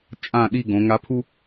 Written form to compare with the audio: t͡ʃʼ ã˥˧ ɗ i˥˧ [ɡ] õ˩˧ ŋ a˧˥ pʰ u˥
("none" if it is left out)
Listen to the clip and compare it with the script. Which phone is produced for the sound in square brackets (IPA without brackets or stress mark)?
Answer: ɡ